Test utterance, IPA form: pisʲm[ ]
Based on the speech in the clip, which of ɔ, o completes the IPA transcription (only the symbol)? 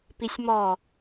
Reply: ɔ